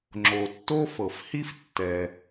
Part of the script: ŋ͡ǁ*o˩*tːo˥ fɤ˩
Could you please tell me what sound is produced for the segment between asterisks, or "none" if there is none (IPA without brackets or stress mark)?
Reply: o˩